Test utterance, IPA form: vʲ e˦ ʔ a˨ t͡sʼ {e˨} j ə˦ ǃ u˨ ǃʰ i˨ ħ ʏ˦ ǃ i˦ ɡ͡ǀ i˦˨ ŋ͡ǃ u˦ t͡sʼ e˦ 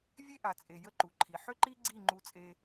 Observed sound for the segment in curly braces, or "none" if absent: e˨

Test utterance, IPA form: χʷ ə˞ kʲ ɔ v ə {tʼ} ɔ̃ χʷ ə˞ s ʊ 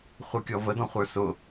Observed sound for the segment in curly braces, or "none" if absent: d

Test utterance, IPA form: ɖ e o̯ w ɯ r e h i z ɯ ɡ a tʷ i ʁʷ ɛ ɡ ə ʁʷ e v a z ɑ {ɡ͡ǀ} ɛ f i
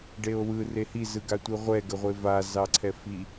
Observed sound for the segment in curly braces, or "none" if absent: ǀʰ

